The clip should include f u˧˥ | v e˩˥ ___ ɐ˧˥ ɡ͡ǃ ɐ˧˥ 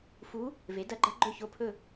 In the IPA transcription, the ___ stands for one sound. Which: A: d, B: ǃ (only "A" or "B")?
A